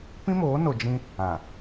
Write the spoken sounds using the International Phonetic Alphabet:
pĩ˦moː˨˦no˨ d͡ʒĩ˦ | ã˨

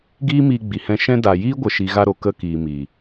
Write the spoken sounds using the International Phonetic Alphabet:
ɡiː˦miː˧ɡ͡bi˨hɛ̃˧ ʃɛ̃˧da˨ jiː˦ɡʷə˨ ʃi˨ ɣa˧ɾo˨ kə˦kiː˨mi˨

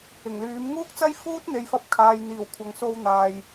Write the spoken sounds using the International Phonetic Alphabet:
ɪ˨˩ŋlyː˨˥m ŋuː˥k̚t͡sɐ˥jfuː˥t̚ n̪e˧jfɐ˥p̚ kʰaː˨jn̪iː˨˩w kʷʰɐ˨ŋso˧w n̪aː˨j

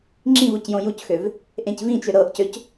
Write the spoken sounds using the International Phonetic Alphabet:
ŋ͡ǁĩv ocjõjucxøv | ʔẽcvĩt͡ʃø ɾɤʔcøc

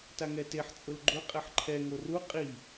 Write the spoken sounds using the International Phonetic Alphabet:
taŋɛteħ t͡sʼʊlɡ͡ǃʊ qʼɛħǃʰɛ ŋoru qʼi

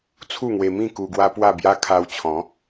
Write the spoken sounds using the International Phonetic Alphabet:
t͡sʰu˥˧ŋwe˧mĩ˥˧ ku˧ɡwa˦pwa˥˧bja˦ kʰa˧wt͡ɕʰɔ̃˨˦

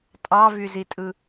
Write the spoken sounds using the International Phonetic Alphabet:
tʼɑvyzitʼɯ

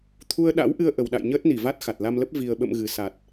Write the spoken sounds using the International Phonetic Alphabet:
t̪ʰu˧ə̯ɗa̰˧˥wʔɨ˧ə̯ ʔə˨˩wɗa̰˧˨j ɲəː˦˥t̚ni˧˩va˦˥t̚ xa˨˩t̚la˧mlə˦˥p̚ vi˨˩ə̯ɓə̰˧˨m ɣɨ˨˩sa˨˩t̚

